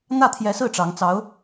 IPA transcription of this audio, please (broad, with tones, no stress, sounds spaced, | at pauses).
n̪ ä˥˩ t̪ʰ j ɛ˧˥ s ɹ̩˥˩ ʈ͡ʂ ɑ˧˥ ŋ t͡s ɑ˧˥ ʊ̯